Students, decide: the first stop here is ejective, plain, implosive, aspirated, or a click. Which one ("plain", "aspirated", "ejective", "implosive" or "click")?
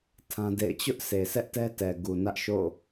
aspirated